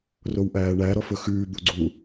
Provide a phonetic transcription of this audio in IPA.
rowʔæːɳæ ɾɔfɵxʉː d̪uɡ͡ǀu

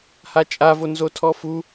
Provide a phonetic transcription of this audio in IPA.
hat͡ʃʼavo nzotʰɔfu

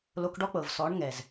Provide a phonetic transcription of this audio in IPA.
lo˧kɖɔ˦k͡pɤ˨v sɔ˨˦ɳ ŋɛ˨z

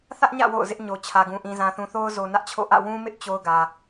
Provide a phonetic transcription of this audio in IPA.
θä˦ʔɲä̰˦˨ wo̰˦˨ʊ̯zɪ˦ʔ ɲo˨t͡ɕʰä˨ɡũ˨ ʔĩ˨zã˨θũ˨ θo˦ʊ̯zo˨nä˦ʔt͡ɕʰo̰˦˨ ʔä̰˦˨wũ˦mɪ˦ʔ t͡ɕo˦ʊ̯ɡä˨

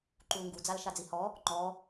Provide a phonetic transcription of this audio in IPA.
ǃulŋɡu d͡zalʃad͡zihɔ | ŋ͡ǃɔ

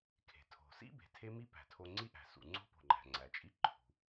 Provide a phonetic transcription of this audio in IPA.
kʰe̤˩tʰo̤˩sḭ˥ be̤˩tʰe˥mi˥ pæ̤˩tʰo˧ ŋ͡ǀi˥ʔæ̤˩sṵ˩ ŋ͡ǀo̤˥po̤˩ŋ͡ǃæ̤˩ ŋ͡ǀæ˩t͡ʃʼi˥ǃʰṳ˩

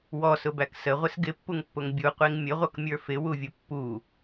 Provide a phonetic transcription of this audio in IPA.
wɔsʊbæk səʁʷɪs ɡɪpːuŋpːʊŋ bʲuqʷiŋ mʲəʁʷʌkmʲə˞ fɪwuvʲʊ pːu

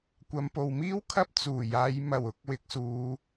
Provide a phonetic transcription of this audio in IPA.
kʷɐ˨˧mpo˨wmiː˥w kʰɐ˥p̚ t͡suː˨˩jaː˨˧j mɐ˨˩w ʊ˨k̚ wɪ˨k̚suː˨˧

